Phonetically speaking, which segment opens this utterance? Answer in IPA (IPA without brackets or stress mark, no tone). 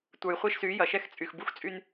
tʷ